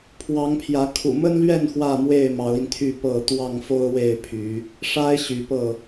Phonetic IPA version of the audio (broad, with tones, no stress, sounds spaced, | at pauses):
pʰ w ɑ˨˦ ŋ pʰ j ä˨˦ kʰ ṵ˨˩ m ə˦ n l ɥ ɛ˥˨ n x w ä˥˨ m w e˥˨ ɪ̯ m ɑ˨˦ ʊ̯ i˧ n t̪ʰ y˥˨ p ɤ˥˨ t̪ w ɑ˥˨ ŋ f o˦ ʊ̯ w e˥˨ ɪ̯ pʰ y˨˦ | ʂ a˦ ɪ̯ ɕ y˨˦ p ɤ˥˨